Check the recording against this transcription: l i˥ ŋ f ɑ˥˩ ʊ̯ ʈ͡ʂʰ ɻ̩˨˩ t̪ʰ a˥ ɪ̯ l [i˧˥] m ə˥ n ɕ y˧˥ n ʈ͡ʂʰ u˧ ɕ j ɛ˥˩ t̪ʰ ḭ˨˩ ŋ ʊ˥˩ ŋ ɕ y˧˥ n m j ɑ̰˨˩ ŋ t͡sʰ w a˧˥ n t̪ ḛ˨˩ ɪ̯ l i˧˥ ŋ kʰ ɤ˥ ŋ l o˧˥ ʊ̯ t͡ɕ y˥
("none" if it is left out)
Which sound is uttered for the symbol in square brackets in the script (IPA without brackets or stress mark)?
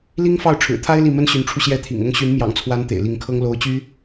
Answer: i˥˩